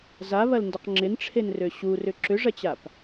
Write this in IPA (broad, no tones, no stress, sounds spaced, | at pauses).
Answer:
z a β ɐ l n d ə q ŋ͡ǁ ɪ n ʈ͡ʂʰ e n r ø ɕ u r ʏ ǁ ʏ ʐ ɐ t͡ɕ a p